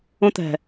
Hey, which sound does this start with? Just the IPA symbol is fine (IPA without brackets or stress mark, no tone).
õ